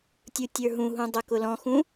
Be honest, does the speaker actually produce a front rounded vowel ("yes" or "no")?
no